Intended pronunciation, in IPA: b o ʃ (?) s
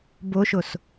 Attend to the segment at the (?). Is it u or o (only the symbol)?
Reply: o